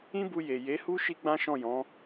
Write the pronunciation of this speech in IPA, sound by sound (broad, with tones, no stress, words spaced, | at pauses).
ĩ˦bu˧je˨ je˨˦hu˦ ʃi˦ɡ͡bã˦ʃɔ̃˦˨jɔ̃˨˦